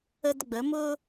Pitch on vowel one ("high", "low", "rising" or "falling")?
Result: high